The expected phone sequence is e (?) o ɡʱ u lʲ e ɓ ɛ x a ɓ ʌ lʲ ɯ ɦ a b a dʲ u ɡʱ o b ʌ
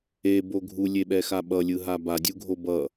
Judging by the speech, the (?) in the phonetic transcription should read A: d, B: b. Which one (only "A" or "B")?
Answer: B